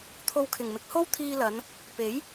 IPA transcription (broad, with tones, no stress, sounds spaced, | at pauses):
t̪ʰ o˧ w kʰ ɪ˨˩ ŋ m ɪ˨˥ k̚ h o˥ w t̪ʰ iː˧ l ɐ˨˧ n | p e˨˥ j